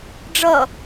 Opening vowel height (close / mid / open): mid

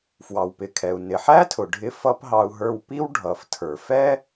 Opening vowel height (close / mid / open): open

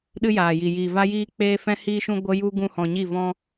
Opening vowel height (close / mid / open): close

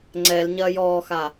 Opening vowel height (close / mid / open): mid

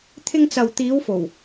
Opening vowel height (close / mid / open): close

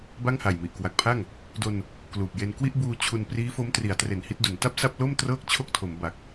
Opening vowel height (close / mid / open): open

